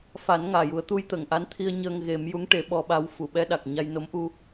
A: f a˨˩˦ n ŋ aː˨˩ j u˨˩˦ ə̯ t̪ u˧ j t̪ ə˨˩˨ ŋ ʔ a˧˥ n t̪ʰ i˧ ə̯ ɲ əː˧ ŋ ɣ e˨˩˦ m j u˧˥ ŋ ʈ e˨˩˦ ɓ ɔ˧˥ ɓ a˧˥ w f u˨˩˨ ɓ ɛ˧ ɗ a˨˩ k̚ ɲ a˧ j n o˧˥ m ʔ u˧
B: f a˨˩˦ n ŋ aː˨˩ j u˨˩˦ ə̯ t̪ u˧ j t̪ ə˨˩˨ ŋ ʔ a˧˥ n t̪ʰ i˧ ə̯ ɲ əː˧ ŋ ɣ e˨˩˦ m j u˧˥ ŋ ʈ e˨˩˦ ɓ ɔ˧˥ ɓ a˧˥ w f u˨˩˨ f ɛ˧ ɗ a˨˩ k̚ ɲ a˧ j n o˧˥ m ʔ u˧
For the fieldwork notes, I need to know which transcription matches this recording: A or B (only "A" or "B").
A